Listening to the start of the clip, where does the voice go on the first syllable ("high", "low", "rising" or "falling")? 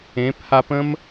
rising